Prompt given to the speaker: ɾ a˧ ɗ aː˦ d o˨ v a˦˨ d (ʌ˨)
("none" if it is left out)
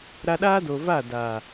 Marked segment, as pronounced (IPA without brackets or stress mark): a˨